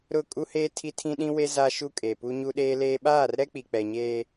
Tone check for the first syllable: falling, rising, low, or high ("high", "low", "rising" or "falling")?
falling